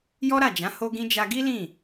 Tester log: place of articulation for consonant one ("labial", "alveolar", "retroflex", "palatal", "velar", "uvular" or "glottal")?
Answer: palatal